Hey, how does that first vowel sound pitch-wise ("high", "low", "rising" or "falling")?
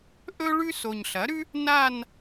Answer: high